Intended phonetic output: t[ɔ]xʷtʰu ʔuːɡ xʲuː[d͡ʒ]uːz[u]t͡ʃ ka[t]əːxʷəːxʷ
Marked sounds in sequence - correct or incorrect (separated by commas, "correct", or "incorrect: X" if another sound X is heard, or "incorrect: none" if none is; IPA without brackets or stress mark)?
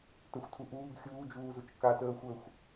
incorrect: ə, correct, correct, correct